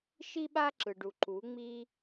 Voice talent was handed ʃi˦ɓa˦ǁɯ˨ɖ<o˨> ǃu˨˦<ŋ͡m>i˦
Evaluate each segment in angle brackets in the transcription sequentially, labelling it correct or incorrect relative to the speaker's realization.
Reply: incorrect: u˨, correct

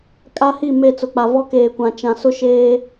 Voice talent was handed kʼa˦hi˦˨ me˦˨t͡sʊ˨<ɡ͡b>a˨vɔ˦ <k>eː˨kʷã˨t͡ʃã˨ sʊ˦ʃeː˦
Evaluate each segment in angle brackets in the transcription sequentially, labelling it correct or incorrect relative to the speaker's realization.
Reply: incorrect: k͡p, correct

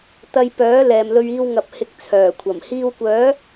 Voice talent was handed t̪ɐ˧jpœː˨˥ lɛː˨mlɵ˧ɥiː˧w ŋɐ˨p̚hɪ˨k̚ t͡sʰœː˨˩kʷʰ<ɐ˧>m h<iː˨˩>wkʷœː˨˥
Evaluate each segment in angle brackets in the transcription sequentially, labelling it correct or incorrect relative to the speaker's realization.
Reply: incorrect: ɐ˨˩, incorrect: iː˧

